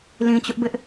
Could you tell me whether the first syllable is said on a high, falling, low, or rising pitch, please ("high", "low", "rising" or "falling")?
low